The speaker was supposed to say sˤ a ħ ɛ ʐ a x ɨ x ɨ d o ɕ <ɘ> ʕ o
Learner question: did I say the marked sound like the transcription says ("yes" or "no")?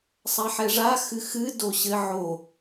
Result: yes